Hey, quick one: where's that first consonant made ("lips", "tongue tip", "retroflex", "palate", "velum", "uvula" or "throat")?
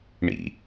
retroflex